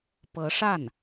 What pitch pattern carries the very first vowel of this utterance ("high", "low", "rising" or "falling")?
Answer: rising